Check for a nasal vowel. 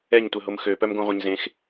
present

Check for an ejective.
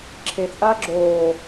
present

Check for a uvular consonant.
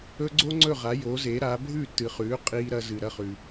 present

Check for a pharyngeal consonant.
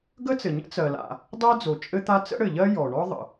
absent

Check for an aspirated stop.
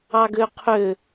present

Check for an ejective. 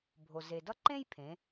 absent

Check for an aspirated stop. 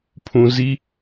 present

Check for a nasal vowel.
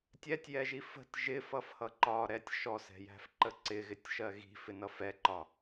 absent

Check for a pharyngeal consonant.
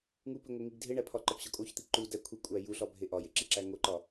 absent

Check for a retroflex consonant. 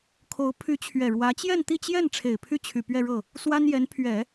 present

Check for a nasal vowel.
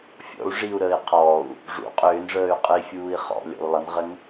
absent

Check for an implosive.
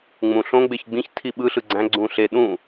present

